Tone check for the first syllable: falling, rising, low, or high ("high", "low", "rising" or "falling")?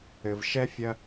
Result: low